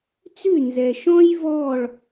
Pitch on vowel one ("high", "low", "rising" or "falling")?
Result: falling